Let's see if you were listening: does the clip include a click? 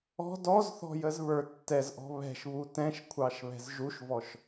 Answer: no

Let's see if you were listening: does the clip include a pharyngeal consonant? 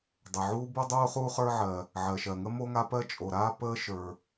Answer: yes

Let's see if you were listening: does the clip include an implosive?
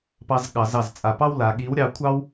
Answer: yes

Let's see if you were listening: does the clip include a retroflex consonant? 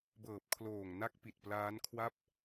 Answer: no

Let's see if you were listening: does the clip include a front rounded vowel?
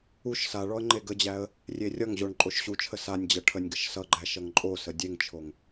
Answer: no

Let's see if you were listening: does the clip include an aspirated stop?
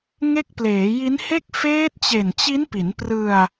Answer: no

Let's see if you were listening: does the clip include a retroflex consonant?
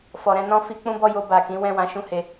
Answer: no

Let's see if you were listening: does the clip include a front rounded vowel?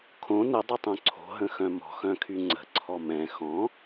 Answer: yes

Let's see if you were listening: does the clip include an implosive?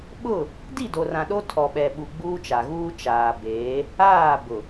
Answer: yes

